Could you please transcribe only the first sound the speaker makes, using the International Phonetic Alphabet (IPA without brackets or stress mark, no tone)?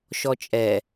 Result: ʃ